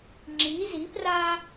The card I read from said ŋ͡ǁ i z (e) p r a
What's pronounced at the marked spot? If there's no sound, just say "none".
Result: i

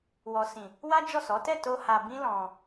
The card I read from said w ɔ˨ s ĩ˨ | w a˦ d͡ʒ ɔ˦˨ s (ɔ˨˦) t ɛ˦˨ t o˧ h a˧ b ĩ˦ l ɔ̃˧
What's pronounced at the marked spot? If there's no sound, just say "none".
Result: ɔ˨˦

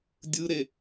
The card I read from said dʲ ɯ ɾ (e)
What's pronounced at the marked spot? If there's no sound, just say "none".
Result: e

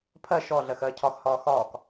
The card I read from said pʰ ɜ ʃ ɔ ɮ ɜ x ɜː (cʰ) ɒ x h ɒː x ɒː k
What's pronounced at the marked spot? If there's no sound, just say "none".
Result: cʰ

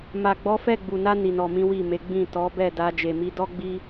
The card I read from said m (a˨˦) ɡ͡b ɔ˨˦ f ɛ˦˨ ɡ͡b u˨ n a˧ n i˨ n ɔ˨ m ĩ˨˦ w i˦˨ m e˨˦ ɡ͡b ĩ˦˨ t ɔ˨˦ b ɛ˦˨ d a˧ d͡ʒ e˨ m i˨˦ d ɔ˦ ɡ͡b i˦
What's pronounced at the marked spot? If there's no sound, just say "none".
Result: a˨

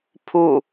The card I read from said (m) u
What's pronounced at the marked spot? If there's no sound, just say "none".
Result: pʰ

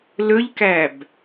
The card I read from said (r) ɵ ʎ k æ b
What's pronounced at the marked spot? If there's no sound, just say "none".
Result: l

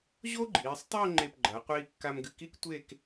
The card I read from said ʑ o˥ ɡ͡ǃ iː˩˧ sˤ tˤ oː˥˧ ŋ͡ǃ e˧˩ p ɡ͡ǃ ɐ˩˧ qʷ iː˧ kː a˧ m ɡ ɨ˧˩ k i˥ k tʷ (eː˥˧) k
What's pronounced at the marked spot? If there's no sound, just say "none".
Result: eː˥˧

